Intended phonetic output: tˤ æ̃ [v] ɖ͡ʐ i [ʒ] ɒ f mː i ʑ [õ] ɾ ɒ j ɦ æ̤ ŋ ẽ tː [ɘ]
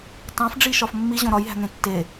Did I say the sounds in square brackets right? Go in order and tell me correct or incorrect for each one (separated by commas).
incorrect, incorrect, correct, incorrect